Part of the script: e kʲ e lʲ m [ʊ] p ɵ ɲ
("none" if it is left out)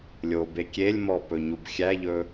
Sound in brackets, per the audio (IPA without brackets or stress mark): ɔ